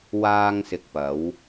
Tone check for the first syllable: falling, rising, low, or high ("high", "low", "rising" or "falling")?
high